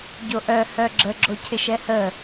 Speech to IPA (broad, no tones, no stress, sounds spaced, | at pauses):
ɟ o ʔ œ h œ ɡ͡ǁ ə ɡ͡ǁ o cʰ ɪ ʃ ɛ h ə